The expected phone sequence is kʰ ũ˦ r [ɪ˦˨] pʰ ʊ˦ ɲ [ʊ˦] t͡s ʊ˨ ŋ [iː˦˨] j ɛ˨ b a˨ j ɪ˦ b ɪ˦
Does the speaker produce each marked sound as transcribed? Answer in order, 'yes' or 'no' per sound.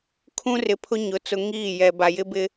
no, no, yes

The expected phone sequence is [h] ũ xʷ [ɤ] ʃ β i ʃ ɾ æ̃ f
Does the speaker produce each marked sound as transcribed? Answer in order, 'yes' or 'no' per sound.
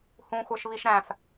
yes, no

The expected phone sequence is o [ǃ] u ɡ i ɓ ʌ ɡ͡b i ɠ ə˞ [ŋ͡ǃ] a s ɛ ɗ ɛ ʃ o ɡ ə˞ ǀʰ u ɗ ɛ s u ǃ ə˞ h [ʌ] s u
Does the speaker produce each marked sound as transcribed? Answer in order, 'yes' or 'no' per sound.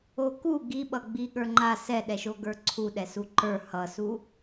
no, yes, yes

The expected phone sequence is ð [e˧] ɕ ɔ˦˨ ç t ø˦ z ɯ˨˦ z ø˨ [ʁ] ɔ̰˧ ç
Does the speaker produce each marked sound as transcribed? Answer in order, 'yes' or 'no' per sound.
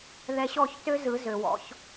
no, no

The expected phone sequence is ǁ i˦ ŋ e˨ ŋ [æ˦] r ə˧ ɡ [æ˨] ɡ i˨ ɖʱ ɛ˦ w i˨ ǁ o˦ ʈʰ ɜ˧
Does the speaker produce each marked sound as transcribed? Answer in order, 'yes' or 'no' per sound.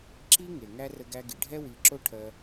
yes, no

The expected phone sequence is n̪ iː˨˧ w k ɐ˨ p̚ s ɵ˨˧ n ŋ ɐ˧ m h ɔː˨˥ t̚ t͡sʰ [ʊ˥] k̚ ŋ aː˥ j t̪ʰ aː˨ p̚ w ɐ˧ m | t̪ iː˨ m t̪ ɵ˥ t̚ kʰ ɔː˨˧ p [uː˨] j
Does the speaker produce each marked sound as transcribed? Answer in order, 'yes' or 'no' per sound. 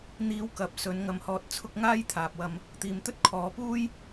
no, no

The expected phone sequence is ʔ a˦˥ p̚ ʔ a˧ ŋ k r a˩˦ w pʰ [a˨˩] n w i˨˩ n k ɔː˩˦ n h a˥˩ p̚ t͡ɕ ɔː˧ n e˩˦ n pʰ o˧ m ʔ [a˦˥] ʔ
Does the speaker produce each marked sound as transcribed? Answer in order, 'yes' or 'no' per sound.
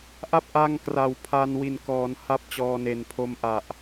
no, no

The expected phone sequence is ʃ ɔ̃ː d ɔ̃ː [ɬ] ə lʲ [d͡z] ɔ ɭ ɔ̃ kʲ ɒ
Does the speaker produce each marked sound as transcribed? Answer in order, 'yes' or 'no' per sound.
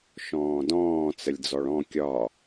no, yes

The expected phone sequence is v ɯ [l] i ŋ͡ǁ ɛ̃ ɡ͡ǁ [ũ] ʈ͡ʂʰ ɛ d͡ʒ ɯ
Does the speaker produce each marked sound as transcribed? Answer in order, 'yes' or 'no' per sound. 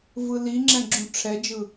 yes, yes

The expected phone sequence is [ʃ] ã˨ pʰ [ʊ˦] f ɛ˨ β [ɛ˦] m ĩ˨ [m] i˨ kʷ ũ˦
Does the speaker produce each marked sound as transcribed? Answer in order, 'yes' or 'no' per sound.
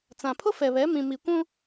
no, yes, no, yes

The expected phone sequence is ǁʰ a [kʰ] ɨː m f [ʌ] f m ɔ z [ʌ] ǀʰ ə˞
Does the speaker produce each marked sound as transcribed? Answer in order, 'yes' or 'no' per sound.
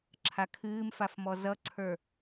yes, no, yes

